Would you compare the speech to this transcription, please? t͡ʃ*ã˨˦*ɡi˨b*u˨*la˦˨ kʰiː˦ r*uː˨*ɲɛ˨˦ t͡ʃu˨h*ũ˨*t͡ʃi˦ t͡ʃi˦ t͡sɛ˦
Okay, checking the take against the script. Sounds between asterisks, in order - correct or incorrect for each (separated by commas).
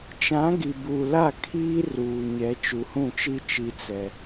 correct, correct, correct, incorrect